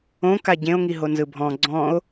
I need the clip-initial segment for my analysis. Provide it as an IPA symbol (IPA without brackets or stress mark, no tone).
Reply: õ